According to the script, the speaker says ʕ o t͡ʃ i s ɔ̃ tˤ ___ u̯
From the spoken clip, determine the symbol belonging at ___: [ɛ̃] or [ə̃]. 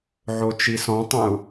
ə̃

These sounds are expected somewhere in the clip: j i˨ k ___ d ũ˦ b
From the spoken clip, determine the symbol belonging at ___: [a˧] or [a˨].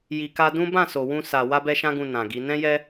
a˧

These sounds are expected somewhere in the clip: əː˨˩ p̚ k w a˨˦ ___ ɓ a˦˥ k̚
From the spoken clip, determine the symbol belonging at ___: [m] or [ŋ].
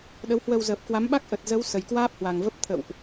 m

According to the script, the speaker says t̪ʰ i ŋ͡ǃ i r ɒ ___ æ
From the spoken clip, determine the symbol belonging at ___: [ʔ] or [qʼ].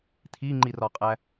qʼ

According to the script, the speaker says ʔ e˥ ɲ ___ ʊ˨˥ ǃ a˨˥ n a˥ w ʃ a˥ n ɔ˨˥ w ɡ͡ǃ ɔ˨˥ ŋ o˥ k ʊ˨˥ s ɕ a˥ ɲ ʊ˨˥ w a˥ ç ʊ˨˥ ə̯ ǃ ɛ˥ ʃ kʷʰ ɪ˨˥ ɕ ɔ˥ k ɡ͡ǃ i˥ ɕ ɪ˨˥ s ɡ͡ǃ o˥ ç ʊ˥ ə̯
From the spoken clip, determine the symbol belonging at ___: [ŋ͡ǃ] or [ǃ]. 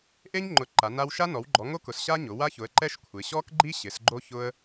ŋ͡ǃ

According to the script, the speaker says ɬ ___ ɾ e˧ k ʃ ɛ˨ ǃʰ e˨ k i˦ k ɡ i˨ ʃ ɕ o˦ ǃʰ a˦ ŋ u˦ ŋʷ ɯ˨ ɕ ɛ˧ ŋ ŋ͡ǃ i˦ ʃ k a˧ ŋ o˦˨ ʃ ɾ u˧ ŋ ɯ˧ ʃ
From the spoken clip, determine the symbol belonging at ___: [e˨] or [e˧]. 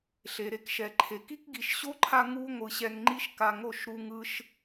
e˨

